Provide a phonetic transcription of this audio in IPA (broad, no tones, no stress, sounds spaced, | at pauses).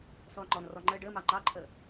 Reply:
s ɔː ŋ͡ǃ ɔ n r ɔ ŋ͡ǃ əː ɖ əː m ɑ ŋ͡ǃ ɑ ǃʰ əː